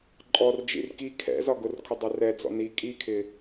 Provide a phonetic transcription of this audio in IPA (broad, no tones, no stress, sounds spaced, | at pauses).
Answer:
ǃʼ ɔ r d͡ʒ ḭ r k i kʰ ɛ̰ z ɒ ɡ ʊ r kʰ ʊ dˤ ɜ r ɛ d͡z ɔ̰ n i kʼ i kʰ ɪ